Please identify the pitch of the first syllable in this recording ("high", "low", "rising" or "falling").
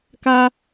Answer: high